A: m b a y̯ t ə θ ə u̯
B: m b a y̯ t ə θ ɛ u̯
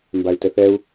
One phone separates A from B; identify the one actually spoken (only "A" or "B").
B